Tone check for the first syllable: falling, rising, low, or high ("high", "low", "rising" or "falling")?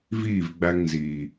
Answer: falling